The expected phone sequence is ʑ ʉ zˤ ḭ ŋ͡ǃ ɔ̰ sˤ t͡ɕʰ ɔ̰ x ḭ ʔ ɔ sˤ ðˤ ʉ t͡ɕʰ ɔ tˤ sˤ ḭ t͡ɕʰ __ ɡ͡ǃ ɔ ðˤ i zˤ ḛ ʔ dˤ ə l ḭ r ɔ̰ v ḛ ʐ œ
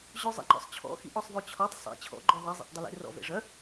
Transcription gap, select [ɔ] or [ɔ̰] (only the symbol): ɔ̰